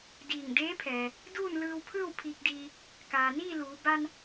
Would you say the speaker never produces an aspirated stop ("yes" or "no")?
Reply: no